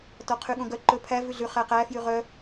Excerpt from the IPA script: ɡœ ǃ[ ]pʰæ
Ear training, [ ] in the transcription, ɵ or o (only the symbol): ɵ